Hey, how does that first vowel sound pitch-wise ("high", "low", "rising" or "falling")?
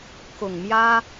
low